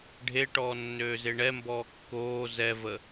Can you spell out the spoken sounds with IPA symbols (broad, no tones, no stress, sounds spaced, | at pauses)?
ɖʱ e ʈ ɔː nː øː z e ɳ ɛ m b ɔː kː oː z ɛ v ə